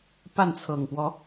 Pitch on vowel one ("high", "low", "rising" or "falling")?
falling